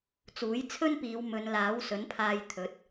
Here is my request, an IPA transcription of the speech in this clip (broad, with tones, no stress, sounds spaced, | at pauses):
t͡s uː˨˥ j t͡sʰ ɵ˥ n p iː˨˧ w m ɵ˨˧ n l aː˨˥ w s ɵ˨˥ n pʰ aː˧ j t̪ʰ ɵ˨˥ t̚